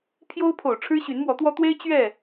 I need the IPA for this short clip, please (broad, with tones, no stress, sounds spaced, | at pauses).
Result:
pʰ j o˦ ʊ̯ pʰ o˨˩ ʊ̯ ʈ͡ʂʰ ɻ̩˦ ɕ y˨˦ n m w ɔ˨˦ t̪ w ɔ˦ t̪ w e˦ ɪ̯ t͡ɕ ɥ ɛ˥˨